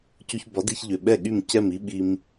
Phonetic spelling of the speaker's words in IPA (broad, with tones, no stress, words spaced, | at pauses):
cu˧çbɒ˩˥di˧çʎʏ˩ ɓɛ˥˩ɠy˥˩mcɛ˥˩m i˥ ɓi˧m